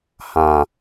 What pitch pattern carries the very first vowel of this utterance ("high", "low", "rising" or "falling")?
low